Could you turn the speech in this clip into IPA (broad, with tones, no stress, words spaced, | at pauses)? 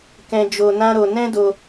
kɛ̃˧ d͡ʒo˧nã˦ɾo˧ nɛ̃˦do˧